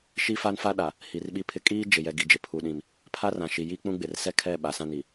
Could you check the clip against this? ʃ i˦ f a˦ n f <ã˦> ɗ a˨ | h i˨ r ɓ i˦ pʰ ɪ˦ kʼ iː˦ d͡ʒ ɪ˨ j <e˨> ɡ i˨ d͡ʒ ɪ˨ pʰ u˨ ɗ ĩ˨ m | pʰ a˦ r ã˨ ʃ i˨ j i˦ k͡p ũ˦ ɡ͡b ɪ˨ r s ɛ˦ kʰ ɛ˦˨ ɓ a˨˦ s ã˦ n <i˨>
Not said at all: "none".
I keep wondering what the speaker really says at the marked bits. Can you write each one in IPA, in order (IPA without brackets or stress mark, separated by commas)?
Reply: a˦, ɛ˨, i˨